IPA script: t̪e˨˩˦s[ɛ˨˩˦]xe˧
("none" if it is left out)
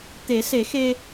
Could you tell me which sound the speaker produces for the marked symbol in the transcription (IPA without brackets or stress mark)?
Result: e˨˩˦